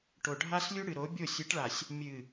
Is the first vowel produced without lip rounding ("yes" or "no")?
no